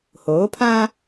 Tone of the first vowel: rising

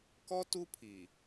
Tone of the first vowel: high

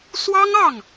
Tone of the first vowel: high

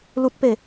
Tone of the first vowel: high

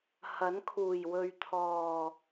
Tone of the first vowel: rising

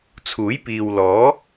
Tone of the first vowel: rising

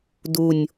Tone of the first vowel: low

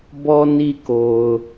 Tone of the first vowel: low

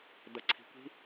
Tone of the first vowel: low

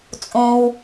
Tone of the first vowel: low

